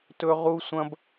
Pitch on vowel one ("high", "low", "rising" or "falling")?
high